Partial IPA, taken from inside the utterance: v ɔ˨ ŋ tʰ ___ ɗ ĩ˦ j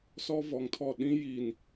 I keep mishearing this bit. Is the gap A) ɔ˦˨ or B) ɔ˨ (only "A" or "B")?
A